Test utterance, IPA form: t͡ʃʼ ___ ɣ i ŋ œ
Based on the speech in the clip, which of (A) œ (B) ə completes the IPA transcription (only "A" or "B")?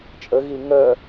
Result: B